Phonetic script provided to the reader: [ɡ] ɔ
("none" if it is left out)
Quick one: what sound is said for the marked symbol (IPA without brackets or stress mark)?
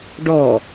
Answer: ɖ